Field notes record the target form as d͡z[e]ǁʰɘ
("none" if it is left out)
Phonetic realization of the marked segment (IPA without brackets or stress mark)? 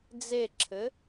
e